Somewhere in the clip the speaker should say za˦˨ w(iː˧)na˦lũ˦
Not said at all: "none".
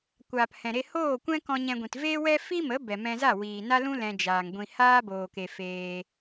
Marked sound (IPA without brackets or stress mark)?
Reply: iː˨